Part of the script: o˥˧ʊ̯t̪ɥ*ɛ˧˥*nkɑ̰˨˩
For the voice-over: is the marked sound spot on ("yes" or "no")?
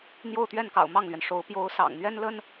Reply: no